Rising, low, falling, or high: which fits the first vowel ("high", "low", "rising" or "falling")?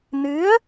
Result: rising